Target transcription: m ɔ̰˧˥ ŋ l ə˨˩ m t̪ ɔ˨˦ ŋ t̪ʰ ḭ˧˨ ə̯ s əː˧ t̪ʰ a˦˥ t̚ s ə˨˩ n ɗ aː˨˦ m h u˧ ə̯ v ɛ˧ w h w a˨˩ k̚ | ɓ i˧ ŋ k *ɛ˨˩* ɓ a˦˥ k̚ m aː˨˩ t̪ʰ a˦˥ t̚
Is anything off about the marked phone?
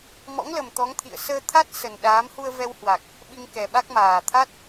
no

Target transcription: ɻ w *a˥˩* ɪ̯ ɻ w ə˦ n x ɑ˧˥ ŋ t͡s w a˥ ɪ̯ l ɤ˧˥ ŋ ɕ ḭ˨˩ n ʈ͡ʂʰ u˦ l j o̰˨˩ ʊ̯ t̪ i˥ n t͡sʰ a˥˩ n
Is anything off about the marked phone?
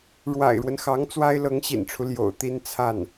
yes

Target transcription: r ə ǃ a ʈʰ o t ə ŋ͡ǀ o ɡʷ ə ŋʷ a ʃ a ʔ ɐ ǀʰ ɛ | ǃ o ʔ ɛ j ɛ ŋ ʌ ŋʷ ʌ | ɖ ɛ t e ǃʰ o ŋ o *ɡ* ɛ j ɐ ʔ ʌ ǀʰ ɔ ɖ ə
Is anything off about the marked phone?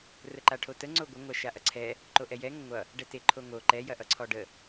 yes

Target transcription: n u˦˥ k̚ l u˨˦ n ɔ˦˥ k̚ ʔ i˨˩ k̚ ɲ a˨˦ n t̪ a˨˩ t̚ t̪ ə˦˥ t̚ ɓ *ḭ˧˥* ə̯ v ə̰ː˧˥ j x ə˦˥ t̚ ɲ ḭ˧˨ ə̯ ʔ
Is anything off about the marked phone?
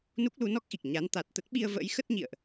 yes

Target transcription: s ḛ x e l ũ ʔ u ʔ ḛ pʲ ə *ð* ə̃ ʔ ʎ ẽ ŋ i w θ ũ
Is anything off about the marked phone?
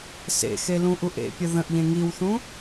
no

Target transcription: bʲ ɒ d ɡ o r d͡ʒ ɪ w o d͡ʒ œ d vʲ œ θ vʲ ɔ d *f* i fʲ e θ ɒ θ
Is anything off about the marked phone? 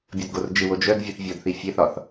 yes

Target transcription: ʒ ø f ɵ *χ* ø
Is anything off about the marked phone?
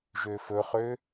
no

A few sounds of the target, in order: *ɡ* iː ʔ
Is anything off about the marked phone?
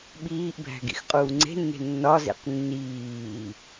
yes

